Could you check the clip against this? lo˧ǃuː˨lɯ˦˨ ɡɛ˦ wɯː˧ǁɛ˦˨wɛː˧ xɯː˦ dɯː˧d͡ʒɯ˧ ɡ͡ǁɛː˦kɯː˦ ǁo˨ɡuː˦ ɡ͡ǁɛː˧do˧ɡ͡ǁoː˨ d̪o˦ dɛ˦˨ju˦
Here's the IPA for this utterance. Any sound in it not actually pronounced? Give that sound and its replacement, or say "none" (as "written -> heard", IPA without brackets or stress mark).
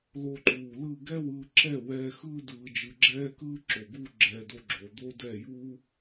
none